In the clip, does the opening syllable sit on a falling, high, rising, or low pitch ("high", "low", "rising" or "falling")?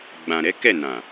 low